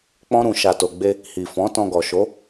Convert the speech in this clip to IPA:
k͡pɔ̃˦ɾũ˧ ʃa˨to˨ɡ͡be˧ | hi˨fɔ̃˨˦ tɔ̃˧ɡɔ˨ʃo˨˦

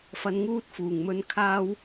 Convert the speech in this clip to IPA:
fɐ˧nŋuː˥t̚ fuː˨˩ŋmɵ˧n kʰaː˥w

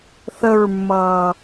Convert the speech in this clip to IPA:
θəɹmːʌː

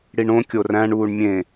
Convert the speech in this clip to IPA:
ɽiɳõ kʲoræ̃ɳ uːɳmʲẽ

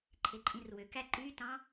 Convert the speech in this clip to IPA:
ǃʰeǃʼĩrwøkæ ǃytɑ̃

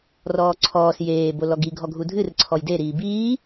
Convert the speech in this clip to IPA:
rɔːǀʰɔːs jeː bolɔɡi ɡʱɔɡʱudʱɨr ǀʰɔjde ɾiːbiː

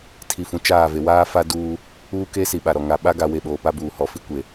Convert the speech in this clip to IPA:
tʰi˨fũ˨ t͡ʃaː˦˨ ve˨waː˦ fa˦duː˦ | uː˦keː˦si˨ ɓa˨ɾɔ˨ ŋa˨ɓa˦ ɡa˨we˨ ɓoː˨pa˦buː˨hɔ˨ fi˦kʷe˨

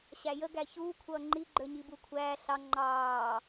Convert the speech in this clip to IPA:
ɕæjə ɡæçuː kʷʰʌːŋ͡ǃi ɡ͡ǃə˞ɲibukʷʰæː ɬɑ ŋ͡ǃɑː

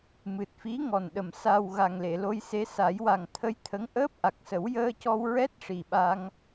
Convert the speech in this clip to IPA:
mɨ˨˩t̚fi˧˥ ŋɔ˨˩nɗə˨˩m sa˨˩w ɣa˨˩ŋle˨˩˨lo˧jse˧˥ sa˨˩˦jwa˨˩ŋt̪ʰə˧jt̪ʰə˧˥ŋ ʔəː˦˥p̚ʔa˨˩k̚sə˨˩˦w jəː˧cɔ˧w ɹɛ˦˥t̚ ʂi˨˩ɓa˧ŋ

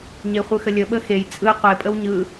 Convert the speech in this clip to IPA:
ɲeχʷɯxəlʲə ɓəxej t͡sʼɯ qʷe pʼəwɲɯ

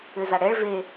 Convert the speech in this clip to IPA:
ʏza ɽɛɭ ve

